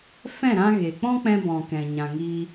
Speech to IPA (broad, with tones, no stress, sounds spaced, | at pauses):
f ɛ̃˦˨ ɾ ã˧ ɣ e˨ k͡p ɔ̃˦ k͡p ɛ̃˧ b ɔ̃˨ k ɛ̃˨ ɲ ã˨ ŋ iː˧